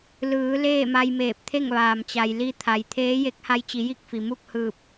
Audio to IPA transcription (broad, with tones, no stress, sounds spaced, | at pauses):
l ɯː˩˧ l eː˥˨ m a˧ j m eː˧˩ p̚ t̪ʰ e˥˨ ŋ ʋ aː˩ m t͡ɕ a˩ j l i˧ t̪ʰ a˩ j t̪ʰ eː˧˥ j e˧˥ k̚ h a˧ j t͡ɕ i˩˧ j i˥˨ k̚ f i˩ m u˥˨ k̚ h ɯː˧˩ p̚